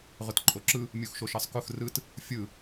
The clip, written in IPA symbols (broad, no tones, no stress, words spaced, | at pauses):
ʁʊtǃʼoǁɯ | mʲuxʃoʃɜsˤkʊx rɯt | fʲɯ